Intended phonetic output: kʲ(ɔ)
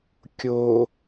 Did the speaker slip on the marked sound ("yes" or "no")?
yes